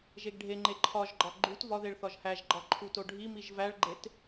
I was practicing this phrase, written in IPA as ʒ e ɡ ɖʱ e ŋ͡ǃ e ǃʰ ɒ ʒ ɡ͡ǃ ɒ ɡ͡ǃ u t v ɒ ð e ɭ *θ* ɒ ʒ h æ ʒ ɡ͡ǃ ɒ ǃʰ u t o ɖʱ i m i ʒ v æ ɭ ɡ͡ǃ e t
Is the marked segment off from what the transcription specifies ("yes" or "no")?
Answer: no